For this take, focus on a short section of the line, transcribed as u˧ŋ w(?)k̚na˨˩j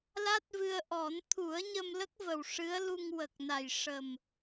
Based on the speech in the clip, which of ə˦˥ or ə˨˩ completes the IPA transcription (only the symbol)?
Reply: ə˨˩